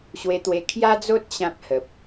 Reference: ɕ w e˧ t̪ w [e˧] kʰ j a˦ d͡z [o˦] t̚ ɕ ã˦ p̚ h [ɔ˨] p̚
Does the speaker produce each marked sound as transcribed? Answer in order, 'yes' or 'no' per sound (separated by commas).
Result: yes, yes, no